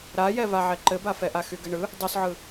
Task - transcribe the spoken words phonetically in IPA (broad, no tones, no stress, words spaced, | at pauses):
ɾajɛvaʕɛ ǃɘbafɛʔa xyɡɘɳɯ | dˤysʕɯ